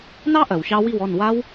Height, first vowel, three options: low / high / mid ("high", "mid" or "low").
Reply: low